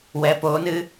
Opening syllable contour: rising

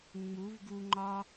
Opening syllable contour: rising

